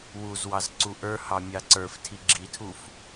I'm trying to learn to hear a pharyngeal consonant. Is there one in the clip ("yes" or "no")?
no